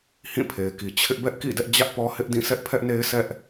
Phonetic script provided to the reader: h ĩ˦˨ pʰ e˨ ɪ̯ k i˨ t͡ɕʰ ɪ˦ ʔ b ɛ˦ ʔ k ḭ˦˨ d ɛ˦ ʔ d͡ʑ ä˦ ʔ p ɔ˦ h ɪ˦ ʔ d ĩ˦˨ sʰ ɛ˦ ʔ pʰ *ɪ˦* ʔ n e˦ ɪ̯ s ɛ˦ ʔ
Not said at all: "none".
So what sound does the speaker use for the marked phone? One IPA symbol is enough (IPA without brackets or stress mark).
ɛ˦